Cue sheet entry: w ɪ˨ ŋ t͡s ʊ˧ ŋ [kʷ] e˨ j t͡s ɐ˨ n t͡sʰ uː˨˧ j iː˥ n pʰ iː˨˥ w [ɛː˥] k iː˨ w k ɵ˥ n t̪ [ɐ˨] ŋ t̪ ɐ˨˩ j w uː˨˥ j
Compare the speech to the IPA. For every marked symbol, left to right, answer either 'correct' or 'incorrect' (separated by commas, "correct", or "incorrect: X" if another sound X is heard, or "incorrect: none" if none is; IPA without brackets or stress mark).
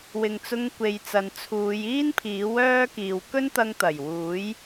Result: correct, incorrect: œː˥, incorrect: ɐ˧